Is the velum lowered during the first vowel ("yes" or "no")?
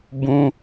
yes